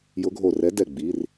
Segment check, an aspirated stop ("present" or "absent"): absent